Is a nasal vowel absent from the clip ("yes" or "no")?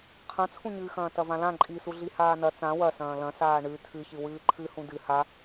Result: no